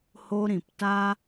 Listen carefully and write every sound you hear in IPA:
h o˧ ɾ ĩ˨ p t a˦

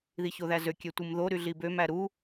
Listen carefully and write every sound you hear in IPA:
ð i ç o ð æ z ø kʲ ø tʷ ɯ m ð o ɾ y ɮ i b ø m æ ɾ u

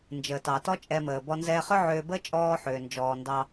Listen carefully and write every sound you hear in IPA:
n d͡ʒ əː˩ t ɑ˩ t ɔ˥ t͡ʃʼ ɛ˧ m əː˩ b ɔ˧ n z ɛː˧ χ ʏ˥ ʕ ʏː˧ b əː˥ t͡ʃʼ ɔː˧ ħ ʏː˩ n d͡ʒ ɔː˩ n d ɑ˧

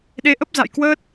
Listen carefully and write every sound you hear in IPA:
ɗ e˨˦ ʔ ə˦˥ p̚ z a̰˧˨ j k w əː˦˥ t̚

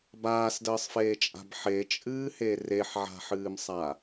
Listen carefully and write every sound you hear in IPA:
b aː s d əː sˤ f eː t͡ʃʼ a̤ b ħ e t͡ʃʼ ɨː h e r e ħ ʕ a̤ ħ ɨː m sˤ a

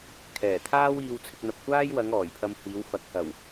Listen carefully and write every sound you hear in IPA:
kʰ ɛː˨˩ t̪ʰ aː˥ w iː˧ w t͡sʰ ɪ˧ k̚ n̪ ɐ˨ p̚ kʷ aː˥ j w ɐ˨˧ ŋ ɔː˨˩ j pʰ ɐ˧ m h iː˨˧ w f ɐ˨˥ k̚ h ɐ˨˩ w

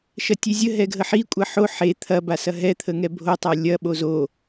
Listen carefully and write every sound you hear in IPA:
ʃ ɐ tʲ e zʲ ə ɦ ɛ ɡʱ ə ħ i kʷʼ ɐ ħ o ħ e t̪ʰ ɐ b a s ɐ ɦ ɛ t̪ʰ ə ŋ ɛ bʱ o tˤ a lʲ ɐ ɓ o z o

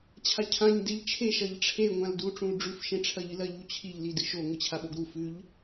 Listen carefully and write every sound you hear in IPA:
t͡ɕʰ a cʰ ã ɲ d e ʎ t͡ʃʰ e ʃ ɐ ʎ ʈ͡ʂʰ e ŋʷ ã l d u ʈ͡ʂ ũ l ɖ͡ʐ ʉ f ʃ ẽ ʈ͡ʂʰ ɐ ʎ ɨ l ɐ ʎ u t͡ɕʰ i ʎ l i d ɨ ʃ o ŋʷ ɨ t͡ɕʰ a ɓ o ɡ ɾ u f ʉ ʎ

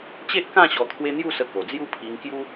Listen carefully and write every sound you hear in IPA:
t͡ɕ e˦ ʔ k ã˥˧ ɕ ɔ˧ t̪ʰ w e˦ n̪ j u˥˧ s ə˧ k o˨˩ d͡z j u˦ pʰ i˧ ŋ k j u˦

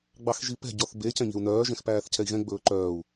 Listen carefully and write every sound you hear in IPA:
ɡ͡b ɑ x ʒ i p ɛ̤ ɟ ɔ θ b e c ɛ̃ ɲ e̤ u̯ n œː ʒ ɛ̃ x p æː θ cʰ ɛ i̯ ɣ ɛ̃ ɡ͡b ɵː ǃ œː u̯

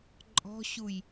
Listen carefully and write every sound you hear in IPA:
ǃʼ ɔ̤ ɕ u j

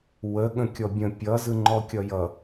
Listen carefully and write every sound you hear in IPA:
w ə ɠ ə̃ kʲ ɔ bʲ ə̃ pʲ ʌ z ɯ ŋ͡ǃ ɔ kʲ ʌ j ʌ

